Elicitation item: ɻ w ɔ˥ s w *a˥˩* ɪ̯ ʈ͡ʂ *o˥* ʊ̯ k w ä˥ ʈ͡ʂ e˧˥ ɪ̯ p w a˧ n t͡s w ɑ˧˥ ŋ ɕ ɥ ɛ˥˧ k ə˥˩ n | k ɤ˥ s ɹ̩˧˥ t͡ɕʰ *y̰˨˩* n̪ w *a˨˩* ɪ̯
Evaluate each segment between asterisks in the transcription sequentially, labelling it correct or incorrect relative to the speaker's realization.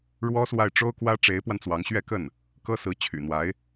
correct, correct, correct, incorrect: a˧˥

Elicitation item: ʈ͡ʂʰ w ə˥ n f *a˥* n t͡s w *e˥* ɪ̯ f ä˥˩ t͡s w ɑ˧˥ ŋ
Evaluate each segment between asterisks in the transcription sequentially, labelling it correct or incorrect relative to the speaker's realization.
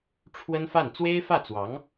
incorrect: a˥˩, correct

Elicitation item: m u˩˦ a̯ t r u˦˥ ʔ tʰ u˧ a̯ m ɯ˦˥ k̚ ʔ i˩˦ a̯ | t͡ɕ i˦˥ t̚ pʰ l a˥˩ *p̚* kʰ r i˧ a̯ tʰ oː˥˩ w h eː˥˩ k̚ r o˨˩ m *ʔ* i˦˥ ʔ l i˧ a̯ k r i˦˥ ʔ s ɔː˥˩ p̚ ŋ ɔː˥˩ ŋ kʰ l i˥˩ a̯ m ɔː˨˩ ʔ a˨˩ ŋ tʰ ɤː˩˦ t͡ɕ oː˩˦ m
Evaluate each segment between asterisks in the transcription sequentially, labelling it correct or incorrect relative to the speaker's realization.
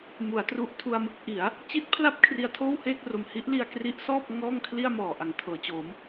correct, incorrect: h

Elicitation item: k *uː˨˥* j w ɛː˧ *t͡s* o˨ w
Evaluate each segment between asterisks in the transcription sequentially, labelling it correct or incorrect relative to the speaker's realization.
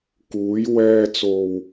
correct, correct

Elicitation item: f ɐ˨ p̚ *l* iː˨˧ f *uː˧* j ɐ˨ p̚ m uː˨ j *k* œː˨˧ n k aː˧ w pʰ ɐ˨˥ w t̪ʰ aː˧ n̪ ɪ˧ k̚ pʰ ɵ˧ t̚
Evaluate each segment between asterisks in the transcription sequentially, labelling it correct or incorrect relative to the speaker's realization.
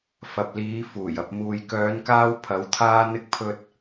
correct, incorrect: uː˨˩, correct

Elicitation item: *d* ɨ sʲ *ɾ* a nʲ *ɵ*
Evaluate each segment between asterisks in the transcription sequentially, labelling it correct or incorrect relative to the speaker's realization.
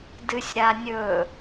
correct, correct, correct

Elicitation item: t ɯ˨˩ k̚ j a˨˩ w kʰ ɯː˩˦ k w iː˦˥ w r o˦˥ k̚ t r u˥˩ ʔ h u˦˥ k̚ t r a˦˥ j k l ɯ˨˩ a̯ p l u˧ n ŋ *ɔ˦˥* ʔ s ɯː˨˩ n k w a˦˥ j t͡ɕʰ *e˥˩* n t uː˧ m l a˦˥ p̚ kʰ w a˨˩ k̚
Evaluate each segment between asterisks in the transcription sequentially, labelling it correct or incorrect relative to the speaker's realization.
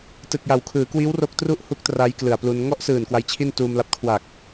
incorrect: ɔ˥˩, incorrect: i˥˩

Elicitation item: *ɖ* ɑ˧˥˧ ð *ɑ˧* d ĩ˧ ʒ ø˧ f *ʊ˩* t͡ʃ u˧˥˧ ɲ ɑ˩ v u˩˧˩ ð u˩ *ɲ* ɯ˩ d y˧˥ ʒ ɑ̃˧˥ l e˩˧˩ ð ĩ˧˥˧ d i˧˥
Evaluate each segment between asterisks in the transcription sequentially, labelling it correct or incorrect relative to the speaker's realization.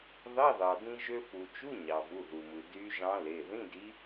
incorrect: ð, incorrect: ɑ˩, incorrect: u˩, incorrect: m

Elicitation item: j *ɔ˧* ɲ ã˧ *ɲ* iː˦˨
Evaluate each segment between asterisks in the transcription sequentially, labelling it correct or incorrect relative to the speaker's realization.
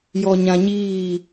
correct, correct

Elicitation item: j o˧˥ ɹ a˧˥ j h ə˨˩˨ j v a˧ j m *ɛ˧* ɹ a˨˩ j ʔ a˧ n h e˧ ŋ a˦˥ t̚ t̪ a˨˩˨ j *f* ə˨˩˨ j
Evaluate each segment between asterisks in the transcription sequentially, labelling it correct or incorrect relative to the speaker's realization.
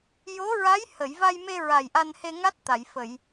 incorrect: e˧, correct

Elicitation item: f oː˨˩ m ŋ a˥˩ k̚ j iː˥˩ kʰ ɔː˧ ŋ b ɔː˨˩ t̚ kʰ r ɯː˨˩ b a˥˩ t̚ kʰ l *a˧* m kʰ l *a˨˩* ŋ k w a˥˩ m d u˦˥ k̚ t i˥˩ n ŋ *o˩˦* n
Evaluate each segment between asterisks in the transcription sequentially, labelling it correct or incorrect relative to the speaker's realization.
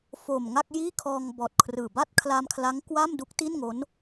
correct, incorrect: a˦˥, incorrect: o˦˥

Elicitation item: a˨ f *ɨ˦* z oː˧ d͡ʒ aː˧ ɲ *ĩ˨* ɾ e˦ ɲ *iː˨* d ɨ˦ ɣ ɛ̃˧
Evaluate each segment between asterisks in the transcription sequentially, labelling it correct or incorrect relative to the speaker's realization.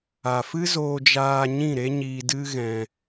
correct, incorrect: ĩ˦˨, incorrect: iː˧

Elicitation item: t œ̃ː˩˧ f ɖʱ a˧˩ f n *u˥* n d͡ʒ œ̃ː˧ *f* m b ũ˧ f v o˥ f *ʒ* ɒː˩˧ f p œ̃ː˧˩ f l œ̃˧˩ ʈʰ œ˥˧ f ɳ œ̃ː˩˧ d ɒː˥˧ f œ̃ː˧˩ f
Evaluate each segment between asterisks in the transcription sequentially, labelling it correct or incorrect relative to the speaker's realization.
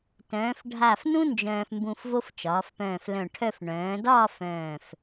incorrect: ũ˥, correct, incorrect: t͡ʃ

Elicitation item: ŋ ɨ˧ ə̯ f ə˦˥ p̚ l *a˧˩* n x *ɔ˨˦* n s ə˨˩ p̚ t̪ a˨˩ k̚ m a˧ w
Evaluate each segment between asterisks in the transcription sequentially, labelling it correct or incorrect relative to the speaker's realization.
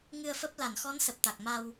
correct, correct

